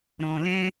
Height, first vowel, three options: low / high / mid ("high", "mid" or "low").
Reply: mid